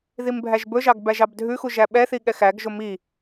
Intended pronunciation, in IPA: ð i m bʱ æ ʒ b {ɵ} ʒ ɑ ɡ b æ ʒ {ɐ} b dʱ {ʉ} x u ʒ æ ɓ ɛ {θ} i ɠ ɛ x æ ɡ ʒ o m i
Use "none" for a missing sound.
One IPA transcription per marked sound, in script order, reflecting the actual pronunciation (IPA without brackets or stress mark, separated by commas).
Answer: ɵ, ɑ, ʉ, θ